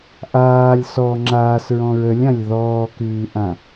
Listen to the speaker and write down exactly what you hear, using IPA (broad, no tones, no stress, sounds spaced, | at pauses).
ʔ aː lʲ s ɔ ŋ͡ǁ aː s ɹ ɔ̃ ɹ ə lʲ ã lʲ ð ɔː k ʉː ʔ ã